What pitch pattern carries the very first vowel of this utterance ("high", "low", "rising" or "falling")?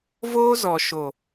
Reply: high